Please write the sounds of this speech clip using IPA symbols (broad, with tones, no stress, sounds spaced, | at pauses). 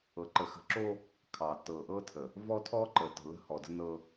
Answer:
ɤ˨ ǃ ə˨ x ə̤˨ ǁ o˦ | kʰ ɑ˨ t ɤ˨ ʔ ɤ˦ tʰ ə˨ | v ɔ˦ tʰ ɔ˦ ǃ ə˨ t ə̤˨ l ə̤˦ h ɔ˨ d ə̤˦ n ɤ˦